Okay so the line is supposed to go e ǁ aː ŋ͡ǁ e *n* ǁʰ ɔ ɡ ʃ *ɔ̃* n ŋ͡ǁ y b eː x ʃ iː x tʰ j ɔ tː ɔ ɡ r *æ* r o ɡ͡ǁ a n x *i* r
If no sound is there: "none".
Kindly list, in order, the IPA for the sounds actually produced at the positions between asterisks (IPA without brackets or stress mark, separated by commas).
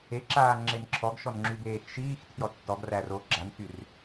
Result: n, ɔ, æ, y